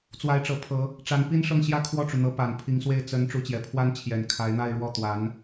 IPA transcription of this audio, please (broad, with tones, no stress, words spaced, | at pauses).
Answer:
t͡swa˧˥ɪ̯ʈ͡ʂɤ˨˩pʰɤ˧˥ | ʈ͡ʂa˧˥npi˥nʂɤ˥˩ŋ ɕjä˥kʰwɔ˥˩ʈ͡ʂu˩n̪ɤ˧˥ pa˨˩npʰi˧˥ŋswe˥˩ɪ̯ t͡sə˧˥n ʈ͡ʂu˧˥t͡ɕjɛ˨˩ pʰwa˥n t͡ɕʰjɛ˨˩nkʰa˧˥ɪ̯n̪a˥˧ɪ̯ ɻwɔ˥˩t̪wa˧˥n